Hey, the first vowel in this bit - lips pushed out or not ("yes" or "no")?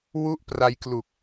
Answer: yes